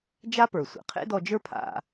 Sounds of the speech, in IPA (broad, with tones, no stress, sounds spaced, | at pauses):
d͡ʒ a˥ p ə˞˩ sʷ ḛ˩ qʰ ḛ˥ d ɔ˧ d͡ʒ ə˞˥ pʰ a̰˧